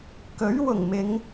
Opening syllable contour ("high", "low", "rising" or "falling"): rising